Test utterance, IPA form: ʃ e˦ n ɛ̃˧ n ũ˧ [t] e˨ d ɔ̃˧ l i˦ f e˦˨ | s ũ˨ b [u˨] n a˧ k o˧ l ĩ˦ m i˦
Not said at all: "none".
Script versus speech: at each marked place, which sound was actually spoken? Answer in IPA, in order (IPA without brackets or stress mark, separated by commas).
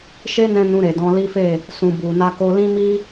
ɾ, u˨